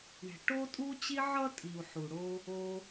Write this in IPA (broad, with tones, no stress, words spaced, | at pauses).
ɳe̤˨ʈo˦tʼu˦t͡ɕi˦ ʕʌ˥tʼi˨u̯ ħu˨ɽo˦ | o˦